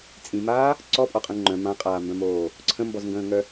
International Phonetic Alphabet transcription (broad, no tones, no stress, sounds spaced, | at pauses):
t͡sʼ ĩ m aː | ǀ ɔ pʼ ɔ qʼ ə̃ː ŋ͡ǃ œ̃ m ã qʼ aː m b œ̃ m oː | ǀʰ ə̃ m b ɔ z ŋ ɡ ə̃ː ŋ œ